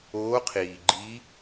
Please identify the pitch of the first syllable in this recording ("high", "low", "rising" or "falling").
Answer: rising